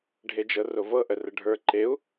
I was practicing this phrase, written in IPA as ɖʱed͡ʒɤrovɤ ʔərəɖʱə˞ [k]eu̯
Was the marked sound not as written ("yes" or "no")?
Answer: yes